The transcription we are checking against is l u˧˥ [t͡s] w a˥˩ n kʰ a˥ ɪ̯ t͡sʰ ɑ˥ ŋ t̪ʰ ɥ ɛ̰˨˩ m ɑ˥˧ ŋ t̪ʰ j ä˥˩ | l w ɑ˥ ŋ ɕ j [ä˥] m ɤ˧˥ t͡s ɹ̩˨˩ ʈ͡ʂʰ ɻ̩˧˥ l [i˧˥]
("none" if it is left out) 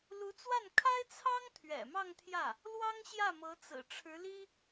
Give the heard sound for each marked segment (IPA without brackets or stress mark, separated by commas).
t͡s, ä˥˩, i˥